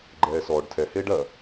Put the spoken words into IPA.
ɡ͡ǃ ɛː s ɔː ɖ tʰ ɛ h eː ɖ ɐː

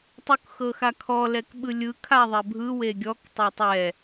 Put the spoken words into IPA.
tˤ u k x ɤ x a kʰ ɔ l ɛ k ɓ ɯ lʲ ɯ kʰ a ðˤ ɛ bʱ ɯ w e ɡʲ ɔ k tˤ ɤ tˤ ɛ

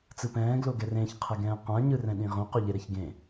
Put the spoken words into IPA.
t͡s ɯ p ɛ̃ː ɡ l o ɡ ɛ r ẽ ç qʰ ɛ ɡ ɛ̃ː q ã ɲ ɯ r ɛ̃ ɗ ĩ ʁ õ q o ʎ e ɾ ɛ ç ɡ ẽ

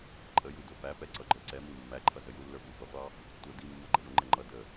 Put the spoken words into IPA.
ǃʼ ə j u d ʊ f æ p ɛ ǀ ʌ ɡ͡ǃ ə˞ ǀ ɛ m i mː æ ǃʰ ʌ z ə j u lː ə˞ v u v ə ʁʷ ɑ | tʷ ʌ d i mː ʌ ɡ͡ǃ ə j ʊ ŋ͡ǃ ɛ ŋ͡ǃ ʌ d ə

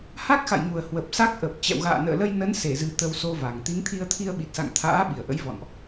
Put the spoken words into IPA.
h a˦˥ k̚ x a̰˧˨ j ŋ u˨˩ ə̯ h w ə˨˩ p̚ s a˦˥ k̚ ʔ ə˨˩ p̚ t͡ɕ ɛ̰˧˨ w ɣ a̰ː˧˨ n ə̰ː˧˨ l ə˧ j n ə˨˦ n s e˧˩ z ɨ˨˩ t̪ ə˧ w s o˧ v a˨˩ ŋ t̪ i˨˦ ŋ t̪ʰ i˧ ə̯ t̪ʰ i˧ ə̯ ɓ i˨˩ t̚ s a̰˧˨ ŋ t̪ʰ a̰ː˧˥ ɓ i˧˩ ə̯ ʔ ə̰˧˥ j v ɔ̰˧˨ n ʔ

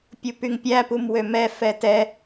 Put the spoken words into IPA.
pʲ u p y ŋ pʲ æ p u m w ø m ɛ f ɛ t ɛ

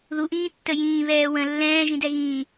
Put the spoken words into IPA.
ð u ʔ ĩː tː ə j ĩː β ɛː w ə̃ lː ɛ̃ː ʒ ĩ d ɛ ɣ ĩː

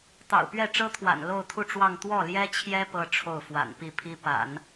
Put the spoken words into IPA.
t̪ ɑ̰˨˩ ʊ̯ p ɥ ɛ˥˩ ʈ͡ʂ ɤ˥ t̪ʰ w a̰˨˩ n l o˥˧ ʊ̯ t̪ʰ u˥˧ ʈ͡ʂ w ɑ˥˧ ŋ t̪ w ɔ˥˩ l j ɛ˥ t͡ɕʰ j ɛ˥ p ɤ˥˧ ʈ͡ʂʰ o˥˩ ʊ̯ f w a̰˨˩ n p i˥˩ pʰ i˥ p a̰˨˩˦ n

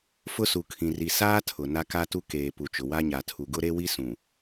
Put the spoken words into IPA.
f ʊ˦ s u˨ kʰ ĩ˨ r i˨ s aː˦ tʰ ʊ˨ n a˦ k a˦ t u˦ k eː˨ p u˨ t͡ʃ ʊ˨ w a˦ ɲ a˨ tʰ u˨ ɡ ʊ˦ ɾ e˦ w i˦ s ũ˨

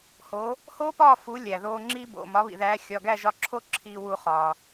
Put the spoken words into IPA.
h o˨˥ | h oː˥ p ɒː˥˨ f u˨˥ lʲ æ˩ ð oː˧ ŋ͡ǁ iː˥ b o̰˩˧˩ m ɒ˨˥ β ḭ˩ ð æː˨˥ xʲ ɒ˩˧˩ ɡ æ˥˨ ʒ ɒ˧ ǁʰ o˥˨ ǁʰ iː˧ w uː˧ χ ɒː˩

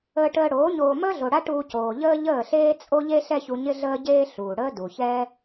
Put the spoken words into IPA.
əː˧ ʈ əː˧ ɽ oː˨˦ ɲ oː˧ m əː˦ ɮ o˨ ɽ a˦ ʈ uː˧ c oː˨ ʎ əː˦ ʎ əː˦˨ ɬ eː˦ t͡sʼ o˦ ʎ e˦ ɬ ɛ˦ ç u˧ ɲ ɪ˦ ɮ əː˦ ɟ eː˦ ɬ uː˨ ɽ əː˦ d u˨ ç ɛː˦

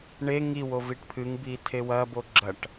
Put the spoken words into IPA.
ɳ e ŋ i w o v i ʈ pʰ ɨ ŋ b i tʰ e w ɐ b o ɡ͡ǁ ɐ ʈ

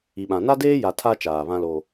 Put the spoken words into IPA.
i˨ ɓ ã˨ n a˦ d eː˦ j a˨ tʰ a˦ t͡ʃ aː˨ β ã˦ l o˦

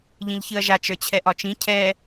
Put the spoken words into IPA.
ʎ ĩ ʎ ç ɨ ɐ̯ ʒ a t͡ʃ ə˞ t͡ɕʰ ɛ ʔ ɒ t͡ʃ ĩ cʰ ɛ

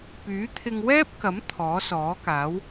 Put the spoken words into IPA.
p yː˨˥ t̪ʰ ɪ˧ ŋ w ɛː˥ p̚ k ɐ˨˥ m t̪ʰ ɔː˨˥ s ɔː˨˥ k aː˨˥ w

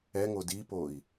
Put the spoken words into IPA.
ɛ ŋ o d i p o i̯

